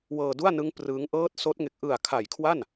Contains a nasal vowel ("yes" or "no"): no